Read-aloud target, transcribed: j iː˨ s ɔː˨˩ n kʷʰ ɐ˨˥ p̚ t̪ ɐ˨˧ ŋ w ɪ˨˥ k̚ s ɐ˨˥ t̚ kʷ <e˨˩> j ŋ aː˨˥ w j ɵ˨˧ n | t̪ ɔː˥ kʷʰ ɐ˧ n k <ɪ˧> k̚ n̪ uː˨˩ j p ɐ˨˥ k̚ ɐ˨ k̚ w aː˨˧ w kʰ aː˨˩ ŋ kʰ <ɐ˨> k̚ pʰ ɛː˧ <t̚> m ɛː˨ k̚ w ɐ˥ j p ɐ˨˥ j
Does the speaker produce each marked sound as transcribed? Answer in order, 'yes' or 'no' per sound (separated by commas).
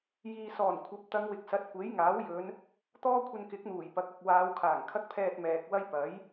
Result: no, no, no, yes